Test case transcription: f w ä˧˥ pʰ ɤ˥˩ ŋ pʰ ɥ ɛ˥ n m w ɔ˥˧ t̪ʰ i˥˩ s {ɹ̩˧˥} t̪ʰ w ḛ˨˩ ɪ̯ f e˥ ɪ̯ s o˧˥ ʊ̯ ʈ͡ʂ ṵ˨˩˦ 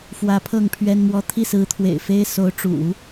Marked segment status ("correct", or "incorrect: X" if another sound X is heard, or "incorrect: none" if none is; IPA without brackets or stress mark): correct